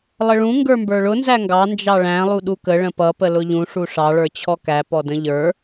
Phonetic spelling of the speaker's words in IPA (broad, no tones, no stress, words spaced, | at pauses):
lˠəɭũ ŋɡə˞mbə˞ɭʊ nzæŋɡɑ nd͡ʒɑɭæ̃ lˠuɗukə ɭə̃pʌ pəlʊʎũ ʂuʂɑ ɭə˞t͡ɕʰɔkæ pɔdə̃ʎə˞